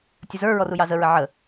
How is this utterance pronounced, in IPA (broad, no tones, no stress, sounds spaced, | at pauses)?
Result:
tʲ ə z ə˞ ɹ ɔ r u j ɑ z ə ɹ ə ʕ ə